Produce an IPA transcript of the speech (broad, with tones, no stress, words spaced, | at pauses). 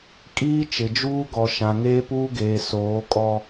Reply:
kʼiː˦t͡ʃɪ˨d͡ʒuː˦ ɡɔ˨ʃã˨ŋeː˦puː˦ ɡeː˨soː˨˦kʼɔ˦